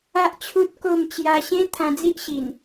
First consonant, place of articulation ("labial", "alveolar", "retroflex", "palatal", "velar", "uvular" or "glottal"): glottal